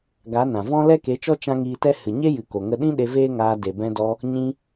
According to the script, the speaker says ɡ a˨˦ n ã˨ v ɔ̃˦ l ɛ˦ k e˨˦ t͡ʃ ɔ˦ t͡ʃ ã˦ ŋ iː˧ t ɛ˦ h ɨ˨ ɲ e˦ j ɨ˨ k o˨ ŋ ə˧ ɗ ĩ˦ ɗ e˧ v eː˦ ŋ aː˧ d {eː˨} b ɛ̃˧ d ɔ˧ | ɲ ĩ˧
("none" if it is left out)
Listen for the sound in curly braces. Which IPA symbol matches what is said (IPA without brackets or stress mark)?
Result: e˨